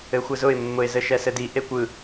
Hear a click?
no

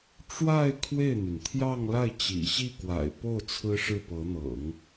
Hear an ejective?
no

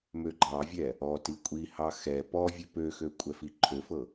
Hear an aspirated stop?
yes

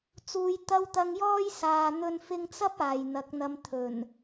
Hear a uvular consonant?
no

